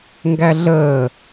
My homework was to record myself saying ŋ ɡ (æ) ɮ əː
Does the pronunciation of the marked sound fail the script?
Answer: no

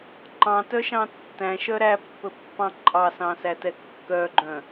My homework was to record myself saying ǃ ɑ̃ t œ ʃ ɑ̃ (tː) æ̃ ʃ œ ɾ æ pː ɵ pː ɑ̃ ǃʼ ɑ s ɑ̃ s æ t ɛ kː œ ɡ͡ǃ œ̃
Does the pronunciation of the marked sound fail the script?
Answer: no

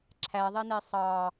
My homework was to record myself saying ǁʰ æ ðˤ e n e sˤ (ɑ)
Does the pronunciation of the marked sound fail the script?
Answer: no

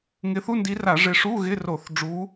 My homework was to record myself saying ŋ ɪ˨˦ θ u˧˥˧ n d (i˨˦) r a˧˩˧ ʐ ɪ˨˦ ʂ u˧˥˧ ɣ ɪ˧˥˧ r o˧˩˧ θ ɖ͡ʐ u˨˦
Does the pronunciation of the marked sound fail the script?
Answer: no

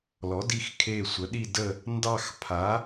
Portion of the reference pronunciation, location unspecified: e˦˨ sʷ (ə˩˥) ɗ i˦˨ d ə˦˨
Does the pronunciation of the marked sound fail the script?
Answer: no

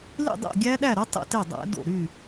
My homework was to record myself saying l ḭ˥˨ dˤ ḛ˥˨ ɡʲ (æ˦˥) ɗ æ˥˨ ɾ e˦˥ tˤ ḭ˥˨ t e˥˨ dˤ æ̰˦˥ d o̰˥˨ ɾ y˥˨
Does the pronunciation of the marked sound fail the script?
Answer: no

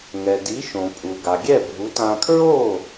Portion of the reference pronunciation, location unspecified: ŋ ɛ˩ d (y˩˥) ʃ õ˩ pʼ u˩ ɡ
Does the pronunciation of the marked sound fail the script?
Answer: yes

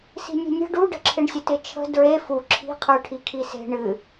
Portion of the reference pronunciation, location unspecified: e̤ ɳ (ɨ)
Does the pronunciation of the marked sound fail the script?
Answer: no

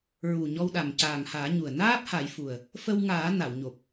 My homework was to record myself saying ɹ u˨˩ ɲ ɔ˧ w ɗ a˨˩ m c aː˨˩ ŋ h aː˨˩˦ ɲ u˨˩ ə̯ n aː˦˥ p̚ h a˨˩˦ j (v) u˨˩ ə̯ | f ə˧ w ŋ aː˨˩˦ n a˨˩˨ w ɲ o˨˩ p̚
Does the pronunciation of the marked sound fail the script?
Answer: yes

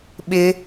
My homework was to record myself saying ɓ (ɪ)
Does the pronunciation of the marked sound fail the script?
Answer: no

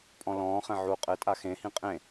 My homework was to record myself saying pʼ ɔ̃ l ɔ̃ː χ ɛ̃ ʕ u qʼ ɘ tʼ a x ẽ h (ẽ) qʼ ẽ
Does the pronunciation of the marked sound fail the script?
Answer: yes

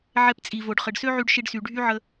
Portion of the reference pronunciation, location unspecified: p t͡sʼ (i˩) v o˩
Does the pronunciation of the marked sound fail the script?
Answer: no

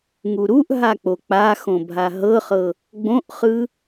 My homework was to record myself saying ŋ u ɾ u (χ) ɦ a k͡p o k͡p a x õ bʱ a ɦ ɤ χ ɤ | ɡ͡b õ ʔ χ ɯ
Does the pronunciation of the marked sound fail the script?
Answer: yes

